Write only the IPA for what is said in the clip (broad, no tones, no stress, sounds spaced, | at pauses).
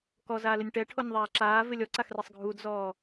k ɔ z aː l ɪ nʲ ʈ ɛ ʈʰ o nʲ ðˤ aː ǁ aː v ɪ lʲ ɔ ǀ a x r e sˤ ɡʱ u d z ɔː